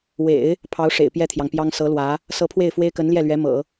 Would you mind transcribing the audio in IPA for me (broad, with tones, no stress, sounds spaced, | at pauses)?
w ḛ˨˩˦ ɪ̯ | pʰ ɑ˧˥ ʊ̯ ʂ ḛ˨˩ ɪ̯ p j ɛ˥˩ t̪ʰ j ɑ˩ ŋ p j ɑ˥ ŋ s ɤ˧˥ l w ä˧˥ | s ɤ˧˥ pʰ w e˥˩ ɪ̯ f w e˥ ɪ̯ k ə˧˥ n l j ɛ˥˩ l ɥ ɛ˧˥ m ɤ̰˨˩˦